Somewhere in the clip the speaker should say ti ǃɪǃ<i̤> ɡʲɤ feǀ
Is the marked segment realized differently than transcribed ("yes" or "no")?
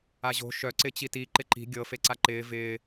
no